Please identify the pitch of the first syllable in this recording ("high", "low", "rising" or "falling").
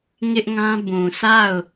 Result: high